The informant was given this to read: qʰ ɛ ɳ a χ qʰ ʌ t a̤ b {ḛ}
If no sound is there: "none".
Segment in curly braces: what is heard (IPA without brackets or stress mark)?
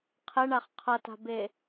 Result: e